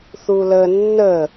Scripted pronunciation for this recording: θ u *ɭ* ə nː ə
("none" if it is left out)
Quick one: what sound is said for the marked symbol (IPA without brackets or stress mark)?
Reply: l